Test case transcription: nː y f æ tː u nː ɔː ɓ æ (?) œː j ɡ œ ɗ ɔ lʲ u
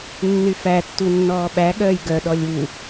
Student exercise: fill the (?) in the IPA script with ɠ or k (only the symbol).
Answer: ɠ